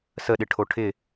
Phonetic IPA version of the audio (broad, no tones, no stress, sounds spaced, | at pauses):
s ə ɗ ɪ ʈʰ o ʈʰ ɪ